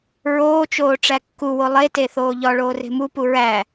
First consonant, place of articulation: alveolar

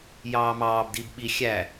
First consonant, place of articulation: palatal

